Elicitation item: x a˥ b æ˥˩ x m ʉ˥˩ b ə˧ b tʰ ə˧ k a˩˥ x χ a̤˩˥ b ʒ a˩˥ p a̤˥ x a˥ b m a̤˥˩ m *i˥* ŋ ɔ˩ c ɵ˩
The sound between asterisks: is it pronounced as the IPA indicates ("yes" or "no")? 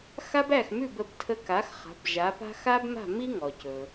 yes